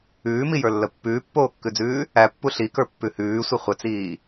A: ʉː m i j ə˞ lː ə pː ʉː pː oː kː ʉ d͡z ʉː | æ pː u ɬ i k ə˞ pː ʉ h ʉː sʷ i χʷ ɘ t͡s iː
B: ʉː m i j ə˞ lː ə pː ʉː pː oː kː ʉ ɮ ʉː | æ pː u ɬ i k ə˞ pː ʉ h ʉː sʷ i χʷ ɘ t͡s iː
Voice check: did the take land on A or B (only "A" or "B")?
A